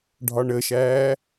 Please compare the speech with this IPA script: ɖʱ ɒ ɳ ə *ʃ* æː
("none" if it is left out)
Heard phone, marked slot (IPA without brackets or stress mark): ʃ